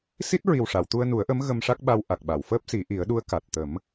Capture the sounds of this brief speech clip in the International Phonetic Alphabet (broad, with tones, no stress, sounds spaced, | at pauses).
s i˦˥ t̚ ɹ i˨˩ w ʂ a˨˩˨ w t̪ u˧ ə̯ n u˨˩˦ ə̯ ʔ ə˧˥ m ɣ ə˧ m ʂ a˦˥ k̚ ɓ a˧ w ʔ a˨˩ k̚ ɓ a˨˩˨ w f əː˦˥ p̚ s i˨˩˦ ʔ i˨˩˦ ə̯ ɗ u˧˥ ə̯ k a˨˩ t̚ t̪ ə˨˩˦ m